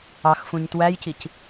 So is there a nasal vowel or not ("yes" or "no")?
yes